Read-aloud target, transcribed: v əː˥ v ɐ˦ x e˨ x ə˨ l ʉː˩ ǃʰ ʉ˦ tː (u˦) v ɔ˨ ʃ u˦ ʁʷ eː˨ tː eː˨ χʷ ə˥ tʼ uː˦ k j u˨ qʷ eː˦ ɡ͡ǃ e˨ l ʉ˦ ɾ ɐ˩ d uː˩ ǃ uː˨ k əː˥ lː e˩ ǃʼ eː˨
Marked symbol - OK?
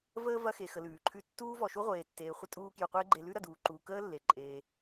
no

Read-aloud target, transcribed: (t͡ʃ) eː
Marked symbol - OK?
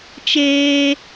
yes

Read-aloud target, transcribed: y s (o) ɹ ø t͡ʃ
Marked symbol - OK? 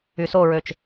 yes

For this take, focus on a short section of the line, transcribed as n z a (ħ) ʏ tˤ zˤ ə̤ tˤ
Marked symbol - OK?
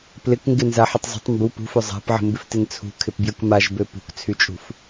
yes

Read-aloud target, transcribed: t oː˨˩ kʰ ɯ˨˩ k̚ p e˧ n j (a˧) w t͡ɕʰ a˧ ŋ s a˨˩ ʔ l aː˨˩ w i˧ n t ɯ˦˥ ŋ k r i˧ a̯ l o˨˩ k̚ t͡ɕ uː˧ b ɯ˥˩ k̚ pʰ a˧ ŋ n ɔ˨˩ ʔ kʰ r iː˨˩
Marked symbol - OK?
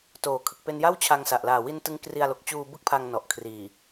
no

